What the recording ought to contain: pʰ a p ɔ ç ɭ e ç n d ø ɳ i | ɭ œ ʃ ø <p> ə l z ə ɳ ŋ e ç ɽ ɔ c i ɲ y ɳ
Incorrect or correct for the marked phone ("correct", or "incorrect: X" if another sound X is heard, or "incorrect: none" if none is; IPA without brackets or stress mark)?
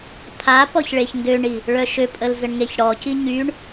incorrect: pʼ